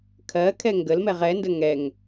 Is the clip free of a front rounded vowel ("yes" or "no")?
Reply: yes